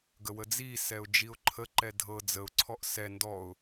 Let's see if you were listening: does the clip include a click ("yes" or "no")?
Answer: yes